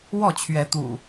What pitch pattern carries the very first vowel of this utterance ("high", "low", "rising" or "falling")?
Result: falling